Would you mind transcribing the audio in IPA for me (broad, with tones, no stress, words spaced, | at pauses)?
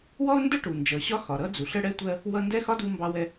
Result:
wɔ˥ʊ̯ndə˥ ʈu˩ nd͡ʒʌ˩ɕɒ˥ xɒ˩ɾʌ˥d͡zu˩ɬ ə˥ɽɛ˥tʷɜ˥ | wʌ˥ ndɛ˥xɒ˥ du˥mbɑ˥wɛ˥